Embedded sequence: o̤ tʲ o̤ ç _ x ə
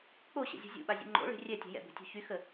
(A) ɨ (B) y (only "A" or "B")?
B